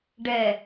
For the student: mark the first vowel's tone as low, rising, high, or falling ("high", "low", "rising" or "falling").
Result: low